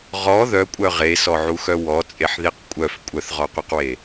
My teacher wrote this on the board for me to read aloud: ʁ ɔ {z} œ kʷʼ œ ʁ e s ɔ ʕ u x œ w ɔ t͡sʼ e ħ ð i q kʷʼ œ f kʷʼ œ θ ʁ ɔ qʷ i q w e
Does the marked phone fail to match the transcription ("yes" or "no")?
yes